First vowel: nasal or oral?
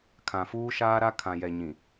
nasal